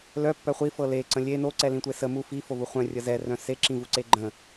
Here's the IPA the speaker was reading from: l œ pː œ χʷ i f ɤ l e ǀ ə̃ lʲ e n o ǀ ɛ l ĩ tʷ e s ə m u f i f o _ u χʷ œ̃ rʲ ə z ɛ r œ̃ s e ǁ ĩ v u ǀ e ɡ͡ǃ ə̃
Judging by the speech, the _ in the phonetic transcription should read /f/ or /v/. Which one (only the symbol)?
v